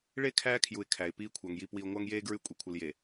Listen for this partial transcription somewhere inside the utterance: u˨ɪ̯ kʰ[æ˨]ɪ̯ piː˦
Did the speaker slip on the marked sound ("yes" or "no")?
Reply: no